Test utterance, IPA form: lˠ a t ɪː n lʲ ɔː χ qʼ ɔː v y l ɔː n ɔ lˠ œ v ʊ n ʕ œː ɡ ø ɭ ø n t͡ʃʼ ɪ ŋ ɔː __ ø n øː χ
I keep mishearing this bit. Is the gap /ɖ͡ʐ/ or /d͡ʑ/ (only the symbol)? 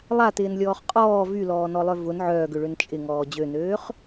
d͡ʑ